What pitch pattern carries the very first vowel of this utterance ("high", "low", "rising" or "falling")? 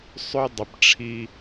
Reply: high